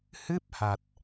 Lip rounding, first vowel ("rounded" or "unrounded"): unrounded